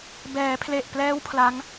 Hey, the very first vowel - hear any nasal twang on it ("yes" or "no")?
no